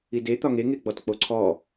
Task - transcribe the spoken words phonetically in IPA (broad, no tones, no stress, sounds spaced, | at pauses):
i d e t̪ ɒ ŋ e ŋ e ɡ͡b ɔ t k͡p o ǀʰ ɔ